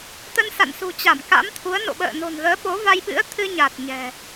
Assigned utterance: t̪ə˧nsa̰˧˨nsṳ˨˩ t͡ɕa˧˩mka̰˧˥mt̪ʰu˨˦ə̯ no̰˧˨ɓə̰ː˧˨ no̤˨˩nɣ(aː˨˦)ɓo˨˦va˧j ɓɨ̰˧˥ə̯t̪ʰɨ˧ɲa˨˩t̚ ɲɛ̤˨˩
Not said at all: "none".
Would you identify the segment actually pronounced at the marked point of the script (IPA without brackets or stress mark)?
əː˨˦